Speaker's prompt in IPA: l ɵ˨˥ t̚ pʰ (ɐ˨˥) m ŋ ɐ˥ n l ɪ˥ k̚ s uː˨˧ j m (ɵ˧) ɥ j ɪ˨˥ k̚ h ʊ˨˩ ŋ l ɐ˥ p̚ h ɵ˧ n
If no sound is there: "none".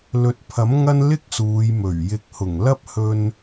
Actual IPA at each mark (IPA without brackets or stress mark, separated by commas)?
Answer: ɐ˨˥, ɵ˨˩